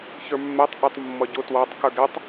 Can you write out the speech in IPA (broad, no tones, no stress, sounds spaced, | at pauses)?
ç ə˞ mː ɛ tˤ ʔ ʊ tˤ mː ʌ ɟ ʊ t w ɑ tˤ k ə˞ ɡ ɛ tˤ